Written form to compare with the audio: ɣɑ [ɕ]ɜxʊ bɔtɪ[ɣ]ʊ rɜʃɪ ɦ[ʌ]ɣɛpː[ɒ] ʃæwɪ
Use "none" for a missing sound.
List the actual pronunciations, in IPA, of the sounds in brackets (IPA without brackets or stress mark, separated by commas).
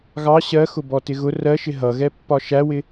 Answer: ɕ, ɣ, ʌ, ɒ